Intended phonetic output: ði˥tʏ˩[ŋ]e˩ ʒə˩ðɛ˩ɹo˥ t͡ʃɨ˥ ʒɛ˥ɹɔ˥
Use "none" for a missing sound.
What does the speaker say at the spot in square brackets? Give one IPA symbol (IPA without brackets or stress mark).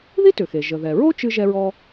x